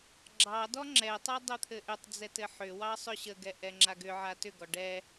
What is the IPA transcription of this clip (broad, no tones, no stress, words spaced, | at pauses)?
ɡ͡ǁɑdɔ ŋ͡ǁɛtˤa dˤɘt̪ʰɘʔʏtˤd͡zɛt ɘħʏwɑ sˤʏɕəɡɛ ʔɛŋ͡ǁaɡʏʕa tʏɡɔ ɖɛ